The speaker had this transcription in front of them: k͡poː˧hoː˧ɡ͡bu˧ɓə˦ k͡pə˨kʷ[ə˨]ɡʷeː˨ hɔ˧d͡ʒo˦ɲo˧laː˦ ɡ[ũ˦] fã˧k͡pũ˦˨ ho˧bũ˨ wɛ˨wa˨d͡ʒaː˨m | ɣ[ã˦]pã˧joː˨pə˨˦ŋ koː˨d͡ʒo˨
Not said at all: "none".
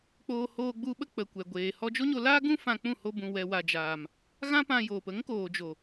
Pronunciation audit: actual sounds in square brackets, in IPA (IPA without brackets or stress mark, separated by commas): ɛ˨, ũ˦, ã˦